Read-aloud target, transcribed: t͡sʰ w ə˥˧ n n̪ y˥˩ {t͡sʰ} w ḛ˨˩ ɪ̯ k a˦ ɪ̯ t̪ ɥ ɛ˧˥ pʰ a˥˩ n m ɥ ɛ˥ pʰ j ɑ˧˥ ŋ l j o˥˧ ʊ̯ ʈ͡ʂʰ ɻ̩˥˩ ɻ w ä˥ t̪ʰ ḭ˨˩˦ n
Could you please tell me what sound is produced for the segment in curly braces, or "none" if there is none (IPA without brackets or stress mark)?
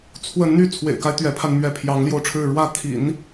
t͡sʰ